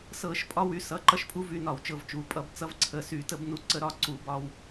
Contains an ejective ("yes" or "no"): yes